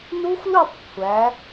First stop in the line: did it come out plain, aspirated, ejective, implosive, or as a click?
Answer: plain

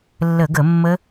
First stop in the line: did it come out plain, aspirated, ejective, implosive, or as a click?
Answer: plain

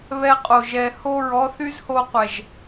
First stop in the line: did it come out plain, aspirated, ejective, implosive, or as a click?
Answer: ejective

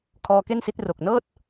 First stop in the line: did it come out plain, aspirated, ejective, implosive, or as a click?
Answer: aspirated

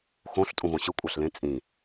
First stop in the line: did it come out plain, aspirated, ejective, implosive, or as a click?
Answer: ejective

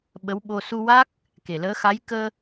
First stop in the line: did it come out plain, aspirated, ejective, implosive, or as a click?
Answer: implosive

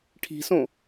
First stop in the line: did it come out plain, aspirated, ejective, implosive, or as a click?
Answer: aspirated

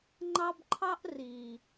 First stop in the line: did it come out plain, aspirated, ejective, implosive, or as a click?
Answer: click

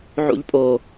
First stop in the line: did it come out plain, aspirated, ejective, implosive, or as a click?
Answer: ejective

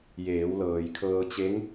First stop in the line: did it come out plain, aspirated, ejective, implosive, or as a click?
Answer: aspirated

